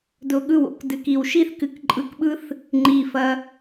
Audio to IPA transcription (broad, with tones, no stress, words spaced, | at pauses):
dʊ˧ɠɯ˦˨w o̰˧k dɨ˨ki˨wʃi˦θ kɨ˨kǃʼɯ˧kɓɯ˦θ | ŋ͡ǃi˨ fɐ˧